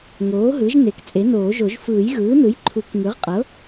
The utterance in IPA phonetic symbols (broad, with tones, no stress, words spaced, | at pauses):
ŋoː˩˥ɦɯ˩˥ʒne˩˥k t͡sʼe˩˥noː˨˩˦ʒo˨˩˦ʒ fɯː˨˩˦jɣɯː˩˥nɯ˩˥j ǃʰu˨˩˦kŋɯ˩˥ʁqʼɤ˩˥